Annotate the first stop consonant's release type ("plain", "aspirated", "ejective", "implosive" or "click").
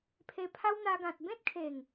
aspirated